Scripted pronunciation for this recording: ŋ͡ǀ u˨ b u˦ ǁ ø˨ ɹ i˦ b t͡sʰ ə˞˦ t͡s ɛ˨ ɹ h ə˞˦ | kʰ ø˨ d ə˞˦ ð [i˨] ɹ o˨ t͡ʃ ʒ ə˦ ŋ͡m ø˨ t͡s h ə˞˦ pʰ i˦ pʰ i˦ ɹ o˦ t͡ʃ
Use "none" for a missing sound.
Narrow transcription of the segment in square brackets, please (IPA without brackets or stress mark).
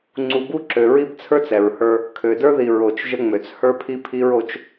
i˨